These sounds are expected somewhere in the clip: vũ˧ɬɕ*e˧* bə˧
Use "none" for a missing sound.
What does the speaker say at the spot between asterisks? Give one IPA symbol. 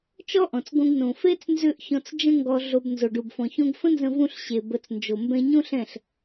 e˨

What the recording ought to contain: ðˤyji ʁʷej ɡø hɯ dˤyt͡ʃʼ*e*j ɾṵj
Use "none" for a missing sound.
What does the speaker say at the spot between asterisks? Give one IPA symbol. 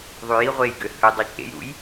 ḛ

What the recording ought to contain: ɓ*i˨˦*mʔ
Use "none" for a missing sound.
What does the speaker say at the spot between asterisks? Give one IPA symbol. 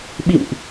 ḭ˧˨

